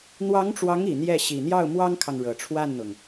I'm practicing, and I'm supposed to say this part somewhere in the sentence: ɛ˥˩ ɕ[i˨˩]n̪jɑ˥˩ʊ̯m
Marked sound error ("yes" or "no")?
no